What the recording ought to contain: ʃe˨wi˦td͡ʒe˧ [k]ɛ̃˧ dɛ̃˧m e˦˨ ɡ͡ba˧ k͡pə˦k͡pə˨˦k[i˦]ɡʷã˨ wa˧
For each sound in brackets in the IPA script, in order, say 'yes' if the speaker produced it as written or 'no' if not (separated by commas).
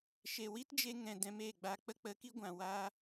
no, yes